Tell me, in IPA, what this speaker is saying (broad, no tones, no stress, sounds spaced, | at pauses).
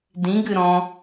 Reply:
d ĩ ɡ ɨ ɾ ɔ̃